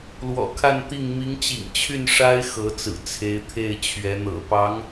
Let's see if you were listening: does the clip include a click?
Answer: no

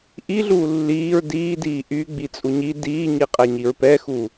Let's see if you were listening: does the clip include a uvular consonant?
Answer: yes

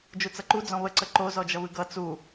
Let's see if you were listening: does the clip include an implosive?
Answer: no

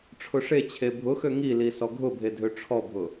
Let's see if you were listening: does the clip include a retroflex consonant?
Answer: yes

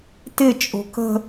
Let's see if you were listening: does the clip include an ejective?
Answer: yes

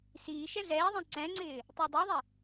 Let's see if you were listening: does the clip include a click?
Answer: yes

